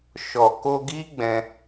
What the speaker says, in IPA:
ʃɔ˨ko˧ɡi˦ɡ͡bɛ̃˧

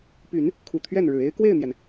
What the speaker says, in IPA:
py˨˩˦n | kʰu˨˩t̪ʰɥɛ˥˩nɻɻ̩˨˩e˥ɪ̯ kwe˥˩ɪ̯n̪jɛ˩n

